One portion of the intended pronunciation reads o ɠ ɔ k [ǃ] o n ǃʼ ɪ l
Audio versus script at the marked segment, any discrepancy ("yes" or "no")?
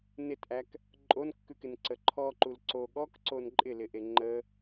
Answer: yes